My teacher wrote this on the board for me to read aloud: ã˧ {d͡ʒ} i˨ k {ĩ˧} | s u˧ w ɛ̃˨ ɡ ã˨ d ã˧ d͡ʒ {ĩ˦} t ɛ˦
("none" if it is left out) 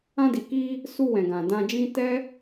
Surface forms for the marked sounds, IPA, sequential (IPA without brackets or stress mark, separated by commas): d, i˧, ĩ˧